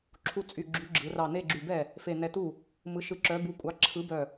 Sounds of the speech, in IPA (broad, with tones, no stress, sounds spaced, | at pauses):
ǁʰ u˥˩ t͡sʼ y˧˩ ɡ͡ǁ y˨˥ ɡ͡ǁ ɯ˩˧ r ɑ˧˩ n e˥˧ ɡ͡ǁ y˧˩ b ɛ˥˩ | f e˧˩ n ɛ˧˩ t u˥˩ | m ɯ˨˥ ʃ ɯ˨˥ ǁ œ˨˥ b u˨˥ kʷʼ ɑ˨˥ ǁʰ ɯ˨˥ b œ˧˩